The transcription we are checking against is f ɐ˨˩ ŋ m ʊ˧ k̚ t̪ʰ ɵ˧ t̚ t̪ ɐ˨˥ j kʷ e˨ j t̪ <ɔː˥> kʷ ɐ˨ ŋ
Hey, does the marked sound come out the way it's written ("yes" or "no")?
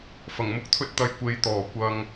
no